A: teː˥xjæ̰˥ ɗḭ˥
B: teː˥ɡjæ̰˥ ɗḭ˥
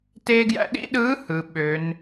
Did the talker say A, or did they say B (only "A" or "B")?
B